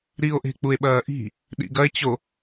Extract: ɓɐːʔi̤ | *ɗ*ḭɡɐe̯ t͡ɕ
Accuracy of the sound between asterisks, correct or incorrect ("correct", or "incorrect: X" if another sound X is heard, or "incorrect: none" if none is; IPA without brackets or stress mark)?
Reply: correct